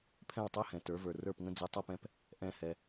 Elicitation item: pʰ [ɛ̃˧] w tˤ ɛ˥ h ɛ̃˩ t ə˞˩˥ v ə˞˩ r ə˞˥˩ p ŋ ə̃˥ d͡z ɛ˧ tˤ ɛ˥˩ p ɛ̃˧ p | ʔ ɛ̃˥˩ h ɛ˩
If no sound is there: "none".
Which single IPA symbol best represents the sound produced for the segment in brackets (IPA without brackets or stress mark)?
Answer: ɛ̃˥˩